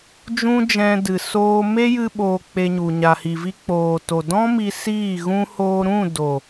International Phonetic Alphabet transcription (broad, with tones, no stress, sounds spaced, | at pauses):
d͡ʒ ũ˦ d͡ʒ ɛ̃˧ d ɨ˨ s oː˧ m e˦ j ɨ˦ ɓ oː˧ k͡p e˧ ɲ u˨ ɲ a˨ h i˨ v i˧ k͡p oː˨ t o˨ d ɔ̃˦ m i˧ s iː˦˨ ɣ ũ˧ h oː˧ ɾ ũ˦˨ d o˨